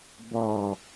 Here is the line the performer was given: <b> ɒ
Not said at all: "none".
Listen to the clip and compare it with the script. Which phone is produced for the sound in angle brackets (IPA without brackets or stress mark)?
b